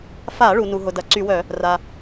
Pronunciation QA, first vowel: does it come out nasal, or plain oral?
oral